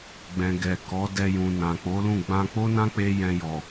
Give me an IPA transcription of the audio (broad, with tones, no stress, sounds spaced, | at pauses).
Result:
ɡ͡b ɛ̃˨ ɡ ɛ˨ k ɔ˨˦ d ɛ˧ j ũ˨ n ã˨ k͡p o˨˦ l ũ˦˨ ɡ͡b ã˧ k͡p o˦ n ã˦ k͡p e˦ j ɛ̃˧ j ɔ˨